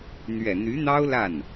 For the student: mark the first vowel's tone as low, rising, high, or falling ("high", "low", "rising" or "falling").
low